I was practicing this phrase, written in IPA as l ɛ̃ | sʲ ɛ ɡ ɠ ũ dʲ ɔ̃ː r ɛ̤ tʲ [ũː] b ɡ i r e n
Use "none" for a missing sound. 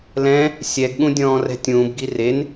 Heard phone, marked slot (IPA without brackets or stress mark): ũː